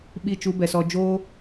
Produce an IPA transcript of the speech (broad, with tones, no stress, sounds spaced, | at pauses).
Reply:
ɓ i˦˨ t͡ʃ u˦ b ɛ˨ s ɔ˦ d͡ʒ oː˦